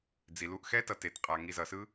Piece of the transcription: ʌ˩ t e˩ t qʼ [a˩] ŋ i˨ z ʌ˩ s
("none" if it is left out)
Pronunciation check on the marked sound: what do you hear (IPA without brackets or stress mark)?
a˩